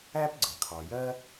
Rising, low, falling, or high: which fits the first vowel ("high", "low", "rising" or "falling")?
high